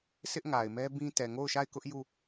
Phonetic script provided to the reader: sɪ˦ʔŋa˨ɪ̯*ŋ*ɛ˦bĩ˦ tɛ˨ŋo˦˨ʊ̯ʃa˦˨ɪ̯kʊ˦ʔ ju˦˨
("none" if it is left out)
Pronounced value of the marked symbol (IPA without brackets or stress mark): m